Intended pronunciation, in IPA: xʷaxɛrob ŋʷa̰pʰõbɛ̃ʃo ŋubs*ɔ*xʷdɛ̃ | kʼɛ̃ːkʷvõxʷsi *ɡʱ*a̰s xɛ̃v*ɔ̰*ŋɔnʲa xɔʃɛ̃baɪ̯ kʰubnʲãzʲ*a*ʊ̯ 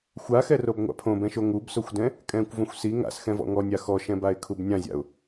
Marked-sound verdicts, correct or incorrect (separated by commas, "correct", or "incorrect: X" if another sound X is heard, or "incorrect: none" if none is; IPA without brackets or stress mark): incorrect: o, incorrect: ŋ, correct, incorrect: a̰